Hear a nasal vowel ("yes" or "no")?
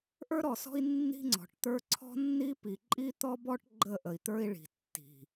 no